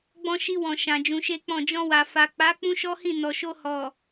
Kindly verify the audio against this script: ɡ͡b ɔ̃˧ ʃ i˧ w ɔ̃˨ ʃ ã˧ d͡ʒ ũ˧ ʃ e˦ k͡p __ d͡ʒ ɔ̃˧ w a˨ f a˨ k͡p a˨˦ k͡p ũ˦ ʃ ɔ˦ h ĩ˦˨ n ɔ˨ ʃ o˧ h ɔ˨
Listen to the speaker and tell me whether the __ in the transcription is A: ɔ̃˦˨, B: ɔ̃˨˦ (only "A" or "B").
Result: A